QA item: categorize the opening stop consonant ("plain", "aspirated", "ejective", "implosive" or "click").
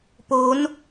plain